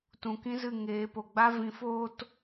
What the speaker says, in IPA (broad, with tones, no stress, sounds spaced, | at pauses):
t ũ˨ k ĩ˦ z ɨ˦˨ ŋ eː˨˦ p o˨ ɡ͡b a˦ v ĩ˨˦ f oː˦ t